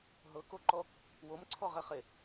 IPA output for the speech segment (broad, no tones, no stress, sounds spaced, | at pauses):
ɦ ɤ k o ǃ ɔ | w o m ǀʰ ɔ ʁ ɛ χ e